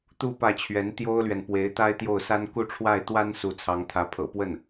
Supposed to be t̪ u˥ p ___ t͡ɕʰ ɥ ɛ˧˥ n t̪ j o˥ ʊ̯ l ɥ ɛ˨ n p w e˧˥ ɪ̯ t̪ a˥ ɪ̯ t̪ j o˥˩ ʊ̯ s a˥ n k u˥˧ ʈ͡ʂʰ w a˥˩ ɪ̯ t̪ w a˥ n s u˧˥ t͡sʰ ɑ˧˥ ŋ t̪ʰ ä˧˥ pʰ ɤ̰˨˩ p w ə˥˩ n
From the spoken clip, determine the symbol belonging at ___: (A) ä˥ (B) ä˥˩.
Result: B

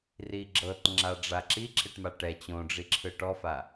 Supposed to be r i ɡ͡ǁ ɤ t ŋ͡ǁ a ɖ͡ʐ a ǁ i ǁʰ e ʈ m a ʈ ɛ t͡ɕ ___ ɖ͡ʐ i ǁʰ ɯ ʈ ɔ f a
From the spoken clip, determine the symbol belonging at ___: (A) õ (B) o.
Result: A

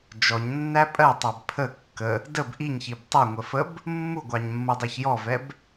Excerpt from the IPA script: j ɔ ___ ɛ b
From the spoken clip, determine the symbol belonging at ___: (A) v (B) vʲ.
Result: A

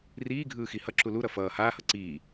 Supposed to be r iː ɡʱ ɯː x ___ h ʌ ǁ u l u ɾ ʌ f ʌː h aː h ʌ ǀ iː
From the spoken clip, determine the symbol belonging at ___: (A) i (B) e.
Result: A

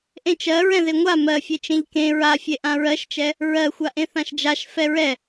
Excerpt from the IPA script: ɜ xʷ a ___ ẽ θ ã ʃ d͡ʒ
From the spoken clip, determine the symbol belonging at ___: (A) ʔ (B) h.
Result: A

